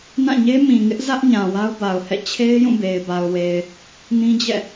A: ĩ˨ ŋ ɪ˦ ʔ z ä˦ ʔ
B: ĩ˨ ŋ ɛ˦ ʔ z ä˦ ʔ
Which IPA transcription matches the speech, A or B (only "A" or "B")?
A